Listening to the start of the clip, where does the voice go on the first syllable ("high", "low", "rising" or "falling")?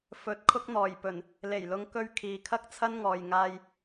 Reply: rising